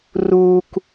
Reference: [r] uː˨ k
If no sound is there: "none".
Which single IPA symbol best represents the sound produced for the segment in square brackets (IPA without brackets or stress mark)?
r